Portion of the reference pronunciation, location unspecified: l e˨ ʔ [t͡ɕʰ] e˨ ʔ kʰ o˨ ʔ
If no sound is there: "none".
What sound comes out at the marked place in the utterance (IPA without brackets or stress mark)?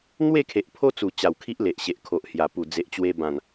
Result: ɕ